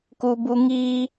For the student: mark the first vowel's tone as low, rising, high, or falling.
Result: high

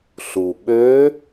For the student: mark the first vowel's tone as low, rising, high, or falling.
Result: low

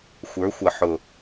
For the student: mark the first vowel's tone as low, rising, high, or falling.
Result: rising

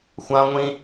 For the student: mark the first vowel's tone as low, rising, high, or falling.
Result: high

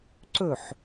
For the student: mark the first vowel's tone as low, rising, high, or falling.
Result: falling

